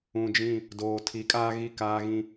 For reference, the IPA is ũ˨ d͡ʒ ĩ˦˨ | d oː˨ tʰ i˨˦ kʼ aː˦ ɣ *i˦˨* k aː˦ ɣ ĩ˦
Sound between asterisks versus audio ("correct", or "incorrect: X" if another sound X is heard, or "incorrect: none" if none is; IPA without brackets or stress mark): correct